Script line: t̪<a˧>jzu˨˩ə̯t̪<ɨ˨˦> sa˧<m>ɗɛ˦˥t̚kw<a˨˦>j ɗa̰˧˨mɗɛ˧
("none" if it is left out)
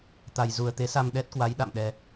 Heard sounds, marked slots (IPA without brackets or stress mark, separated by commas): a˨˩, e˨˦, m, a˨˦